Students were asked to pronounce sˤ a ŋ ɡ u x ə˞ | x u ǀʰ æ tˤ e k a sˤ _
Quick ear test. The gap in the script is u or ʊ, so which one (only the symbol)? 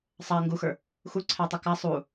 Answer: u